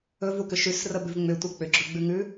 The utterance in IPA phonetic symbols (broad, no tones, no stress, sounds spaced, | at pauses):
ɵ v u k ʏ ʃ ʉ s r ə b ʉ v ŋ͡m ʏ tʷ ə k͡p ʏ ɡ͡ǁ ɵ ɡ͡b ʉ ŋ ʉ